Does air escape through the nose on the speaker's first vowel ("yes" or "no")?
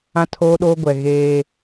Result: yes